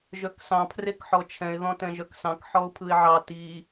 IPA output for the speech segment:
ʒ œ k s ɑ̃ pʰ r e k ħ ɔ t͡ʃʰ ɛ̃ ɪ̯ ð ɔ̃ t ɛ̃ ʒ œ k s ɑ̃ k ħ ɔ ʊ̯ pʰ ɯ ɪ̯ ʕ ɑ t i

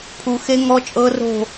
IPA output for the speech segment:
pʰ u˨ x e˦˥ ŋ ɔ˦˥ t͡ʃʼ ɤ˦˥ r o̤˥˧

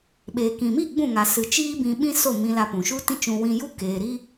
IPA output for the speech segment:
ɓ eː˨ k ĩ˨ m i˦˨ ɡ͡b ũ˦˨ ŋ a˨ s ɨ˨ t͡ʃ iː˦ b ĩ˧ ɓ ĩ˦ s o˦˨ m ĩ˧ l a˧ p ũ˨ ʃ u˦ t ĩ˦ t͡ʃ ũ˧ w ĩ˧ j u˦ k eː˨ ɾ i˦

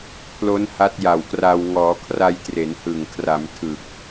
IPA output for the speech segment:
pʰ l o˦˥ n h a˦˥ t̚ j a˨˩ w k r a˧ w ŋ ɔː˩˦ kʰ r a˧ j t r e˩˦ n h ɯ˨˩ ŋ kʰ r a˩˦ m tʰ ɯ˨˩ k̚

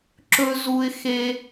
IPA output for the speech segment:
ǁ ɵ˥ z u˥ ɪ̯ x e˥

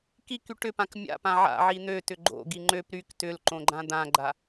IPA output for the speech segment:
k i k y ʈ ʏ p ã k mʲ a̰ p ã ʕ a̰ ʕ i n̪ ø t ʏ ɡ͡ǃ o̰ ɡ i ŋ͡ǃ ø p ɾ y k t ʏ l ǃ õ ɡ͡ǃ ã d̪ ã ɡ͡ǃ a

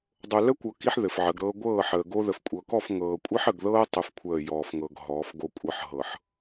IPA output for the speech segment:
dˤ o˨ l ə˦ kʷ ɤ˨ k i˦ ħ ð ɘ˨ f ʕ ə˨˦ ɡ ɾ ɤː˦ ɡʷ ɤː˦˨ ħ əː˨ ɡ o˦ ð ə˨ f kʷʼ ɤ˨ k ɔ˦˨ f ŋ ɤː˨ kʷʼ ɘ˦ ħ ə˨ ɡ ð ɤː˦ tˤ ɘ˦ f kʷʰ əː˦˨ j ɔː˨ f ŋ ɤ˨ ɡ ɦ ɔː˨˦ f ɡ o˦ kʷʼ ɤ˦ ħ ɦ ɤ˨ ħ

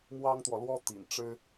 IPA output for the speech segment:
m w ɑ˥ ŋ t̪ w ɔ˨ l w ɔ˥ t̪ ḭ˨˩ n ʈ͡ʂ ɻ̩˥

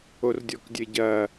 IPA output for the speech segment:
o r dʲ ɔ k dʲ ɘ ɟ ɐ

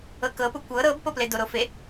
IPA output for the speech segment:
ɤ k ɤ p u kʷ ɤ ɾ ɤ b p o p l e d o ɾ o f e

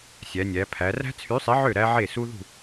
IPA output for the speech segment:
sʲ æ˩˧ nʲ æ˩˧ pʰ æ˩˧ r æ̤˦˥ t͡sʰ y˨˥ sˤ i˨˥ ʕ ø˥˩ ɾ æ˦˥ ʕ e˥˩ s u˦˥ ð ṳ˥˩

